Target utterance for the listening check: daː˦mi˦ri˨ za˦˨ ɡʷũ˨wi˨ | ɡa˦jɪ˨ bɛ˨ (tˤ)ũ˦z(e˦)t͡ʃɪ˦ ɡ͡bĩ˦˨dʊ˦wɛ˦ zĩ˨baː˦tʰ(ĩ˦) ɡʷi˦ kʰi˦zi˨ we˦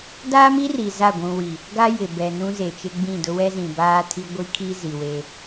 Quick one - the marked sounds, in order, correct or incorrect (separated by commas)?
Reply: incorrect, incorrect, incorrect